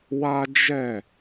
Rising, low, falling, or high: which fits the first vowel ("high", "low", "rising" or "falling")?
high